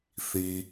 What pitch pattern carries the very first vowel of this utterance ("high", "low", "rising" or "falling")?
low